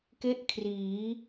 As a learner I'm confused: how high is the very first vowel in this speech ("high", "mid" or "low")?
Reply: mid